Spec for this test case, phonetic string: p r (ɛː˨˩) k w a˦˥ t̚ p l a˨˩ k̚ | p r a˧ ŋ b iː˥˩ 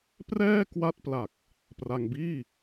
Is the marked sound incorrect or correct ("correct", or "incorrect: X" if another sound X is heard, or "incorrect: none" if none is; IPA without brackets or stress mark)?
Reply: incorrect: ɛː˥˩